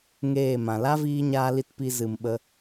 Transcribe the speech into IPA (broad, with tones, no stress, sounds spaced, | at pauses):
ŋ eː˦˨ m ã˨ l a˦ v iː˧ ɲ aː˧ l i˧ t p i˧ z ɨ˨ m ɓ ə˦